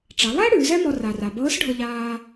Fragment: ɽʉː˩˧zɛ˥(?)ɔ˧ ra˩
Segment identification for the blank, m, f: m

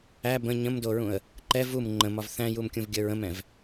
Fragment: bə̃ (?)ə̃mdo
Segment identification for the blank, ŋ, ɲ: ɲ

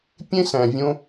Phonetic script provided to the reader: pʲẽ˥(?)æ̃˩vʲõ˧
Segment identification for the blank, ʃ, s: s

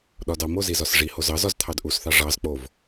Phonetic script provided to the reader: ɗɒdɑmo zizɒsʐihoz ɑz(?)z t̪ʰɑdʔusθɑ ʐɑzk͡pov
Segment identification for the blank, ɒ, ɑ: ɒ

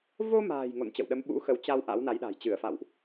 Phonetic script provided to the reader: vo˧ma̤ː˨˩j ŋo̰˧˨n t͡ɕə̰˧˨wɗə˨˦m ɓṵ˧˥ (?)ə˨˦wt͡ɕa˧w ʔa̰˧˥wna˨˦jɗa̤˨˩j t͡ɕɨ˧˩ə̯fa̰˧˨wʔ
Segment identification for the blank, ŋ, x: x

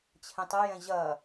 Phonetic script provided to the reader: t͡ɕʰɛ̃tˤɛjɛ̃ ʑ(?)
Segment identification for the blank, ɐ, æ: ɐ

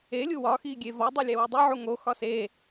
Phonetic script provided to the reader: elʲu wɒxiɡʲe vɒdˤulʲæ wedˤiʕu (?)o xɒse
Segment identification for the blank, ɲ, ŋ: ŋ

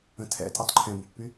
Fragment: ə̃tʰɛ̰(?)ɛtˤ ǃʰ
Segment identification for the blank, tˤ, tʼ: tʼ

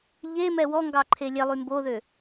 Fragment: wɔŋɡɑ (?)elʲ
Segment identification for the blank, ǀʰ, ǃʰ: ǃʰ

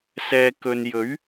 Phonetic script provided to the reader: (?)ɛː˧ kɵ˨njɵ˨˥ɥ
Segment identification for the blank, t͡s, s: s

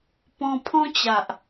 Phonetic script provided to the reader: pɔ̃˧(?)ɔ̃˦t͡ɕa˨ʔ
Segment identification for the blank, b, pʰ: pʰ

